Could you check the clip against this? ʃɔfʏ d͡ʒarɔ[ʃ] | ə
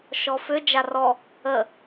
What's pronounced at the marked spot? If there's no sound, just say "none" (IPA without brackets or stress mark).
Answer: none